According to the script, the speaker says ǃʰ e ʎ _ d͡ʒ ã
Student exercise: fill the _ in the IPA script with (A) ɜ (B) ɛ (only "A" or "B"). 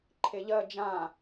A